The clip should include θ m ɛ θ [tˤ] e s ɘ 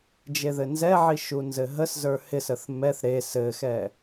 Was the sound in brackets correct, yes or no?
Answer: no